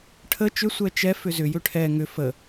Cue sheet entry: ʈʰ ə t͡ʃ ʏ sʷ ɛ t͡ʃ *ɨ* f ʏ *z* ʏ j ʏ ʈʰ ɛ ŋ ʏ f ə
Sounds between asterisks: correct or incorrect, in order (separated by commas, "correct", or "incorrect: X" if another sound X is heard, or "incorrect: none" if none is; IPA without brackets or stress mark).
incorrect: ɛ, correct